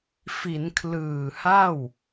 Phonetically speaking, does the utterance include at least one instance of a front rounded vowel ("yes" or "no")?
no